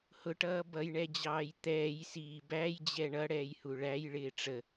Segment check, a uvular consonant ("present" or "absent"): absent